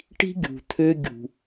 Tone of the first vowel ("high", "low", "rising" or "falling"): high